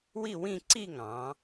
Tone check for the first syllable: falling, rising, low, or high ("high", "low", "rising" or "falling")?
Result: falling